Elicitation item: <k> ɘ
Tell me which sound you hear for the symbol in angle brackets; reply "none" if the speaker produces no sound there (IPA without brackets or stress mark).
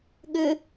ɠ